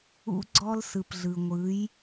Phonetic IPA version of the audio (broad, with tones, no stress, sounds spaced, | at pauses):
ṵ˦ ɡ͡ǀ ɔ˦ l s ɯ˨ p ɮ ɯ˨ ŋʷ ɯ˨˦ j